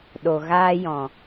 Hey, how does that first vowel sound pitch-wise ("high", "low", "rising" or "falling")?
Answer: low